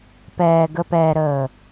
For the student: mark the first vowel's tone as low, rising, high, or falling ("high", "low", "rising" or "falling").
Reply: low